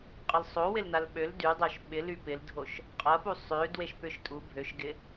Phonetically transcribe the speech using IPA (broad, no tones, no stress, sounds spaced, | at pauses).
qʼ ə l sˤ o w ɪ l n a l ɓ ø l d y dˤ œ ʃ ɓ ɪ l y p ɪ l dʱ o ʃ | qʼ ɐ p u sˤ ø d w e ʃ p ʏ ʃ tʼ u bʱ ø ʃ ɡ ɪ